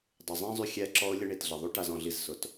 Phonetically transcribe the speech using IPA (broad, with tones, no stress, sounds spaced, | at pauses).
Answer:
dˤ ɪ˨ zˤ ɛ̃˦ zˤ y˧ xʲ ɛ˧ ǁ ɔ˧ ʊ̯ lʲ ə˦ ɳ i˨ t ɮ ɪ˨ ðˤ y˦ ʈ a˦ z ɔ̃˧ ɮ i˦ z s ʊ˨˦ t